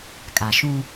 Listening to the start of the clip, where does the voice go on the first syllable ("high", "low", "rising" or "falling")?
low